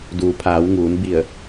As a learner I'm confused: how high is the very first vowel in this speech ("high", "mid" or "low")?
high